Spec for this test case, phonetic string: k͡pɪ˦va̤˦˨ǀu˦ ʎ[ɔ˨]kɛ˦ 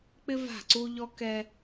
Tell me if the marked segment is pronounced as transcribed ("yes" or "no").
no